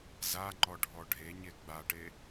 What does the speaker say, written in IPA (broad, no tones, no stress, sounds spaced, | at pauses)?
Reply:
z a ŋ͡ǃ ɔ ɖʱ ɔ ɖʱ e ɲ e ɡ͡b a ʈ e